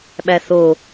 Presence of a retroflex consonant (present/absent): absent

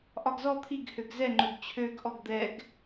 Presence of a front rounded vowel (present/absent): present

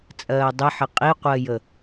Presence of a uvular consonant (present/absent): present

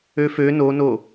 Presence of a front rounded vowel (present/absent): present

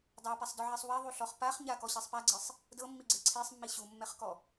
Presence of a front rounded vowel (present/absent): absent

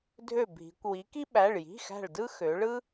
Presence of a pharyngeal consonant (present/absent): absent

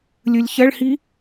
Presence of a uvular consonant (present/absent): absent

